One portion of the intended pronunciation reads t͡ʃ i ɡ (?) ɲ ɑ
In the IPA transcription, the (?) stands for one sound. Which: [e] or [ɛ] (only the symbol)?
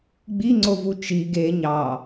e